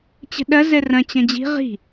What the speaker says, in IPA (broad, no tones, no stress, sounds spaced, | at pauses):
t͡ɕ ə̤ ɗ ɐ z ɛ r ɐ̃ t͡ɕ ɐ̃ d͡ʑ i̤ ʁ i̤